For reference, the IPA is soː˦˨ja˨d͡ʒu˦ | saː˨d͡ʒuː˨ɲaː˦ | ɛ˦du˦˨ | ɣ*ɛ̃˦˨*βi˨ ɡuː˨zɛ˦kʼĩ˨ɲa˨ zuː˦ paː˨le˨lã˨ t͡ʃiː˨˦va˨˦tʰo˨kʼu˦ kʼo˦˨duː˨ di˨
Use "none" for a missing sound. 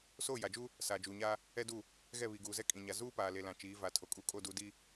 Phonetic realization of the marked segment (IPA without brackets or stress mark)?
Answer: ɛ˦˨